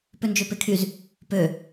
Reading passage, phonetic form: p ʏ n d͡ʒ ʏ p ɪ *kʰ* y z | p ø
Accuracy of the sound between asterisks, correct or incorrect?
correct